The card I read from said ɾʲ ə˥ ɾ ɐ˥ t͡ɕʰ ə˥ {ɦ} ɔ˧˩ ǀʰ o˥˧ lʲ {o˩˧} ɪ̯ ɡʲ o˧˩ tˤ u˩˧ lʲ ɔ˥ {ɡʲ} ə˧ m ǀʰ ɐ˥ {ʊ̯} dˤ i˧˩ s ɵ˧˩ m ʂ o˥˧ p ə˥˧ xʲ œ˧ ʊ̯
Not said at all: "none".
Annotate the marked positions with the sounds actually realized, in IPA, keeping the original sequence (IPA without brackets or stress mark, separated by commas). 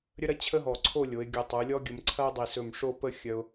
ɦ, o˩˧, ɡʲ, ʊ̯